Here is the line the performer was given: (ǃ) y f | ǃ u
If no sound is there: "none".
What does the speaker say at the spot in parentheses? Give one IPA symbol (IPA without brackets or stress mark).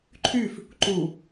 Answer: ǃʰ